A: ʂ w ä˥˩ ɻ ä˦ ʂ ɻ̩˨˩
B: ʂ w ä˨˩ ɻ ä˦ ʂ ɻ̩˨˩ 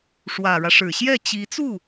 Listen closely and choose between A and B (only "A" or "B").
B